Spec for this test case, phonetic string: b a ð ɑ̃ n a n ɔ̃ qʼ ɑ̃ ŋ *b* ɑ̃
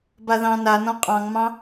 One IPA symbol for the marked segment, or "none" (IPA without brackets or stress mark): m